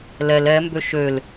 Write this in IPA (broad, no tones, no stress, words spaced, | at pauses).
lɛl ɛmbø ʃøl